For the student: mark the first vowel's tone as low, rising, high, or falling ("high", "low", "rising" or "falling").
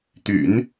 low